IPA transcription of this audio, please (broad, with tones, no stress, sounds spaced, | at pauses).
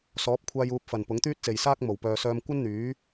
s ɔː˨˥ p̚ kʷʰ aː˧ j uː˨˥ p̚ f ɐ˨˩ n p ʊ˨˥ ŋ t̪ yː˥ t̚ t͡s e˨ j s aː˥ k̚ m o˨˩ w p œː˨ s œː˧ m kʷ ɐ˥ n n̪ yː˨˥